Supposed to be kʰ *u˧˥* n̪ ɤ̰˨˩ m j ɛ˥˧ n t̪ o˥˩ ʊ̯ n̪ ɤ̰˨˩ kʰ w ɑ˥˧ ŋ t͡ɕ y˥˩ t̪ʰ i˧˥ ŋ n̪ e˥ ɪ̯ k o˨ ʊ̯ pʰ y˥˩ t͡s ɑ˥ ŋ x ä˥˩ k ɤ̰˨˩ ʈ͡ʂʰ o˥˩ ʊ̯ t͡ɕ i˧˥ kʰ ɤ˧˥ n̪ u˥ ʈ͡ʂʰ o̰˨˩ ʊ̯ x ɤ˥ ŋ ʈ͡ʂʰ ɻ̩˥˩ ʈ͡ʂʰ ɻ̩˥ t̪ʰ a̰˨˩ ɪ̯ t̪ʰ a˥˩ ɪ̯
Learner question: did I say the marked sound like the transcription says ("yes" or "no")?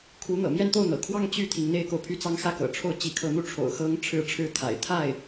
yes